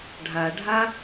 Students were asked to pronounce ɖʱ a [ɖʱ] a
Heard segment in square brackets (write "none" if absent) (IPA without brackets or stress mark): ɖʱ